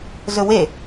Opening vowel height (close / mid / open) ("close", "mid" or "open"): mid